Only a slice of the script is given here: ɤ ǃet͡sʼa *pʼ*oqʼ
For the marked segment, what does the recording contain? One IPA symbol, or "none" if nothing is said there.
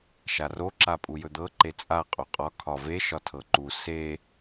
qʼ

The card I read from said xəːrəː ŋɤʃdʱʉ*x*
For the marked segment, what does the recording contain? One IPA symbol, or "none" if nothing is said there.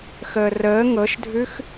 x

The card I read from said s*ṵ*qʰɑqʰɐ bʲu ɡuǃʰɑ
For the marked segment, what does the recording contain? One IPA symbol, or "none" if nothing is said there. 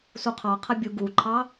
u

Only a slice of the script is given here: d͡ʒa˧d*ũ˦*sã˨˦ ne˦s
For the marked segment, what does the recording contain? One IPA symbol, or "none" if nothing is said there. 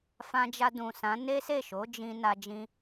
ũ˨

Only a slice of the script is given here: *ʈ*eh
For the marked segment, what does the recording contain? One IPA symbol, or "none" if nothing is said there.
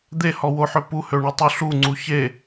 d̪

